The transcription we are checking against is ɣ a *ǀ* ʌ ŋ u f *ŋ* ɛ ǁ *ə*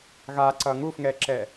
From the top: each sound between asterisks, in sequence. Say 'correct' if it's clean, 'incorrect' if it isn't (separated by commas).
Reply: correct, correct, incorrect